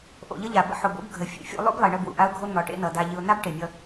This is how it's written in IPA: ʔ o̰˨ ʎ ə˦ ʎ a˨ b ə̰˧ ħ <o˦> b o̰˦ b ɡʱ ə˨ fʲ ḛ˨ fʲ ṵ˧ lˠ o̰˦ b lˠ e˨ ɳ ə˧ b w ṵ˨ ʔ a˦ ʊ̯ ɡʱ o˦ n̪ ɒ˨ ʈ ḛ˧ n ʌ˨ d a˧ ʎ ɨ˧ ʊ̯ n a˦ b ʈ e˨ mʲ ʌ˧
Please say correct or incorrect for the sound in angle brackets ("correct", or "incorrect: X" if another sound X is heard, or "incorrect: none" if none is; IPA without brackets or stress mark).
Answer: incorrect: o˨